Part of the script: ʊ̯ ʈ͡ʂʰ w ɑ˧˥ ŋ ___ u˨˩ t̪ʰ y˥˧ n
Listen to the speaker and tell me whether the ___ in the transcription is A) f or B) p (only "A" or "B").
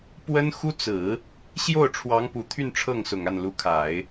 B